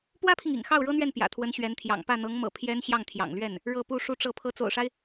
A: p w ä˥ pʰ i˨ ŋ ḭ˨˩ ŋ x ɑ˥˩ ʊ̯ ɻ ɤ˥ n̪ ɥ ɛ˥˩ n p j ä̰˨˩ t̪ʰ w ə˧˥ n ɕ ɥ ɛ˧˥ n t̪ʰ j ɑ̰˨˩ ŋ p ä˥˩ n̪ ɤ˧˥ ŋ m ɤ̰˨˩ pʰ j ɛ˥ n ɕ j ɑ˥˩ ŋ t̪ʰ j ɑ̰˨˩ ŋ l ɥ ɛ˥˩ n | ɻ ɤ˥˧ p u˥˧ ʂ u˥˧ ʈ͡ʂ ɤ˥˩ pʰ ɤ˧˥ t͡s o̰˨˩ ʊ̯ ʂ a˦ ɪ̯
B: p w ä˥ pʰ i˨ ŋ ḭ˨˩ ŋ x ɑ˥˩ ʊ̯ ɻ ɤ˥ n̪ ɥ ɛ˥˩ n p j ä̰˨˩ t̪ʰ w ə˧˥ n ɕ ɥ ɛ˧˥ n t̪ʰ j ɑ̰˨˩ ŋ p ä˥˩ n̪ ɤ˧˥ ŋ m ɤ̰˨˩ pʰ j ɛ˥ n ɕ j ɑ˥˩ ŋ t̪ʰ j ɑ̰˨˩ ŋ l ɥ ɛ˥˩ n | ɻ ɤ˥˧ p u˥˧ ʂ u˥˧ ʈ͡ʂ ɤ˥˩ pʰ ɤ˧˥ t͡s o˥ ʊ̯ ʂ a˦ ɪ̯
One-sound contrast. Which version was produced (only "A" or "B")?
A